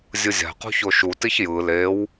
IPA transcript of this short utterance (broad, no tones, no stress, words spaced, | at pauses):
zʲɯzʲa̤qṳ çoʃutiç jɯ lew